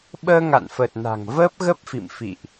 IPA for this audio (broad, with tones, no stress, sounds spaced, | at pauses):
ɓ əː˧ ŋ a̰˧˨ n f ə˨˩ t̚ n a̤˨˩ ŋ v əː˦˥ p̚ ɣ ə˦˥ p̚ f ḭ˧˨ m f ḭ˧˨ ʔ